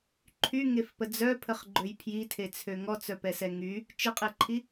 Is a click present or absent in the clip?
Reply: present